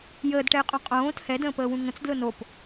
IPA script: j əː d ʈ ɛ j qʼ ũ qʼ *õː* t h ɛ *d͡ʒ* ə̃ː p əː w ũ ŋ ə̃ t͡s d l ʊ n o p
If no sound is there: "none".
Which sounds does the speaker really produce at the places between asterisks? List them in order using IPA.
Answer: õː, d

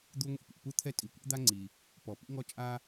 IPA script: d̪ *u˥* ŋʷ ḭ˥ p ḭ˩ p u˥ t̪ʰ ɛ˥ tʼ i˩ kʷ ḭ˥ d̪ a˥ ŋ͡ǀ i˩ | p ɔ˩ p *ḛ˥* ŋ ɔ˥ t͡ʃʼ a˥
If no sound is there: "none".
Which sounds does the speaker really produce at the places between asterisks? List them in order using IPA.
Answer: u˥, ḭ˥

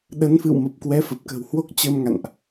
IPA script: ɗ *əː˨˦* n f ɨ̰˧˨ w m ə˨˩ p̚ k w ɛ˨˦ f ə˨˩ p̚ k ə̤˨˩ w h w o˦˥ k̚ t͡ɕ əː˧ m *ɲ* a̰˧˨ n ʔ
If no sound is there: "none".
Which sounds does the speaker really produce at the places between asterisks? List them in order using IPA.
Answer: ə˨˦, ŋ

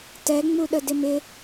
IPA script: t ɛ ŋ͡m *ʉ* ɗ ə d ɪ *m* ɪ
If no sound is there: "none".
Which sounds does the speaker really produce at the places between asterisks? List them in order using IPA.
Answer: u, m

